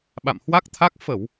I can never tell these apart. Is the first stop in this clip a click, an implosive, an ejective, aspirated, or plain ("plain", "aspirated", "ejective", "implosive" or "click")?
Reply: implosive